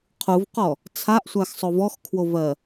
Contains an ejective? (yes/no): no